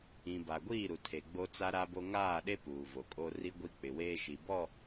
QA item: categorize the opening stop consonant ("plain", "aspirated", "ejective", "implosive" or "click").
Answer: plain